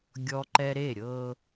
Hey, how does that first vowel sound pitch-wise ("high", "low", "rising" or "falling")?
high